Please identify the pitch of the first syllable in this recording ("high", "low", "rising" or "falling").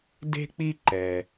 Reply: high